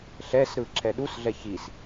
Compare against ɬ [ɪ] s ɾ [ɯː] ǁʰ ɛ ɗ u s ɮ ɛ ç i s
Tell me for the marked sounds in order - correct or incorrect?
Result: incorrect: ɛ, incorrect: ɯ

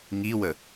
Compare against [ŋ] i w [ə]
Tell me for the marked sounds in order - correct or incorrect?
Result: correct, correct

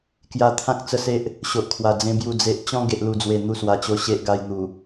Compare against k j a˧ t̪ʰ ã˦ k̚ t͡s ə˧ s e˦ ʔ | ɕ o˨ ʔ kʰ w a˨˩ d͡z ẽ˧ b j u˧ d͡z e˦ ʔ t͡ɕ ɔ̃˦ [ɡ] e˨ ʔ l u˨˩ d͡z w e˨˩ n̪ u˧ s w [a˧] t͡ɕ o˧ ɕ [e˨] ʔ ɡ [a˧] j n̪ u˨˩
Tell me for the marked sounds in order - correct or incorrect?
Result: correct, incorrect: a˨˩, incorrect: e˦, correct

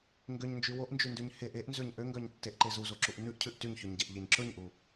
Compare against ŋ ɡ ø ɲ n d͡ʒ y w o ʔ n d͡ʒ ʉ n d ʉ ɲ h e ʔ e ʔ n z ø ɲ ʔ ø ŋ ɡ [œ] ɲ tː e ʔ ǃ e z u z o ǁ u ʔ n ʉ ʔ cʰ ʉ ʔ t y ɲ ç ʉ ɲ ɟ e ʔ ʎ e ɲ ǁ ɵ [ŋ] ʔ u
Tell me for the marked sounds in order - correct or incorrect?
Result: correct, incorrect: ɲ

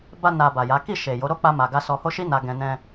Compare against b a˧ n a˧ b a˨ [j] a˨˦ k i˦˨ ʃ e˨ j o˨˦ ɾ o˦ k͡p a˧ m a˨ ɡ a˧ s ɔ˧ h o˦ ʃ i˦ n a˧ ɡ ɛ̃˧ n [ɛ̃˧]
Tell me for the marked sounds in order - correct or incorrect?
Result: correct, correct

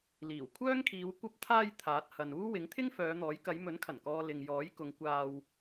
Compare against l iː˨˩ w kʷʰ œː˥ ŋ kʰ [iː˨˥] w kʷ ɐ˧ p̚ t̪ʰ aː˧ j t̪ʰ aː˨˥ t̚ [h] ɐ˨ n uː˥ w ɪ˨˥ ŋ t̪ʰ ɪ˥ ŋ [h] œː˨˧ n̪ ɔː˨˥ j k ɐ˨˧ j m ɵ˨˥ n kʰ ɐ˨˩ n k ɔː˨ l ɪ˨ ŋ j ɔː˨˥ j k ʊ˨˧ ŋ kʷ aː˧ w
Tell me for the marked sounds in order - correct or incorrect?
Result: incorrect: iː˨˧, correct, incorrect: f

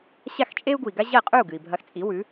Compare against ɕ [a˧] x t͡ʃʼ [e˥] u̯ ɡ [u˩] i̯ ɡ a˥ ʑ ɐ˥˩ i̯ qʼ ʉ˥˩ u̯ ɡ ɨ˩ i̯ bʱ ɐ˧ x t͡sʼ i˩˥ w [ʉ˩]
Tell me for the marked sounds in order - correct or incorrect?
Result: incorrect: a˥˩, correct, correct, incorrect: ʉ˩˥

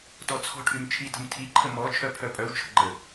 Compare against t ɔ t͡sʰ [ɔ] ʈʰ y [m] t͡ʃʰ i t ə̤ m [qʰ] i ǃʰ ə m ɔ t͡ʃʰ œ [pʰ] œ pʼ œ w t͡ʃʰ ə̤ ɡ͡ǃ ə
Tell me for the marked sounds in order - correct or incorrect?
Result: incorrect: ɔ̤, correct, incorrect: tʰ, correct

